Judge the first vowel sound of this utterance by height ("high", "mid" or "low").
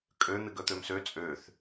mid